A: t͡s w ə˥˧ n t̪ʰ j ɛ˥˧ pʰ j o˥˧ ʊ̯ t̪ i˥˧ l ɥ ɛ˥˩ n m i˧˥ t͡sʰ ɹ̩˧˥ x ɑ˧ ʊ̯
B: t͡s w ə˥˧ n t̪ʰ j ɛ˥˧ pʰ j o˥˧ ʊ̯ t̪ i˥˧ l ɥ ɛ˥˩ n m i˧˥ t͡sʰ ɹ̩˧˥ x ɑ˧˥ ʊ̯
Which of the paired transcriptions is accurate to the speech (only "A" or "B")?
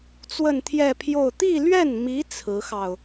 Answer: A